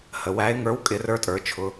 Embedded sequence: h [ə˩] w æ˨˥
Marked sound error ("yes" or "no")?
no